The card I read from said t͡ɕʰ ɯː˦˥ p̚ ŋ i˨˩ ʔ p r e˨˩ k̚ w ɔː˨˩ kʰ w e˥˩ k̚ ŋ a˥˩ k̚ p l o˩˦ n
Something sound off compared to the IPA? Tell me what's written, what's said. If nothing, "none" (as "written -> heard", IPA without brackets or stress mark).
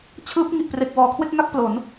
none